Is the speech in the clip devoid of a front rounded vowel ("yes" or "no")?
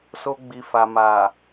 yes